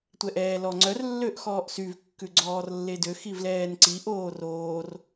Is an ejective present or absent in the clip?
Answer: absent